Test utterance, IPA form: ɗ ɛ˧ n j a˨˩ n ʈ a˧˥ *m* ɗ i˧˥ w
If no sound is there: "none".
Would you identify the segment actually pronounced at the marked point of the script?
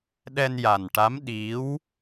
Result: m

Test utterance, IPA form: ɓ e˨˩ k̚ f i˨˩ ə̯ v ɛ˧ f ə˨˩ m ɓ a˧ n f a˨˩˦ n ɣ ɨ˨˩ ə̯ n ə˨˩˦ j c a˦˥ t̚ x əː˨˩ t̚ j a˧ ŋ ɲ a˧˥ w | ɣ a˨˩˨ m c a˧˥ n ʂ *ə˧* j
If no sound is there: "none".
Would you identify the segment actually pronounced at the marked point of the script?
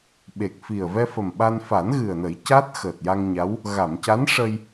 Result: ə˧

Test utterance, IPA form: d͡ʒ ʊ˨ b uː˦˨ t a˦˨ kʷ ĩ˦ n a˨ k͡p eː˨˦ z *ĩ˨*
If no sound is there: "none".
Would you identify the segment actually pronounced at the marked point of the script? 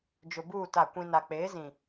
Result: ĩ˨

